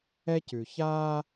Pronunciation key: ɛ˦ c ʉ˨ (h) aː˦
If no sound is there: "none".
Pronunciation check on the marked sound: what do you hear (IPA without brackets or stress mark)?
ç